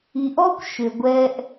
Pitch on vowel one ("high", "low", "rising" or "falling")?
low